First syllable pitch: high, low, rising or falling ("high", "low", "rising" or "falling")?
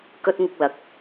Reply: high